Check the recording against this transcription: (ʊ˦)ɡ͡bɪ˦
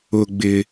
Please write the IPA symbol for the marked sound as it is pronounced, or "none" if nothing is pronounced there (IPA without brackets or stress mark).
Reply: ʊ˦